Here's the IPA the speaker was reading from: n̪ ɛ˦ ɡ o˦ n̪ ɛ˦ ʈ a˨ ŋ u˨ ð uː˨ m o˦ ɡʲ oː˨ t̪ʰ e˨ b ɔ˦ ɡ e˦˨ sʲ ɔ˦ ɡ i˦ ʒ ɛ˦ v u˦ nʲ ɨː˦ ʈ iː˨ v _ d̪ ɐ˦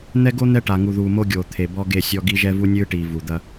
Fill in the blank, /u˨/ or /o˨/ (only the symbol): u˨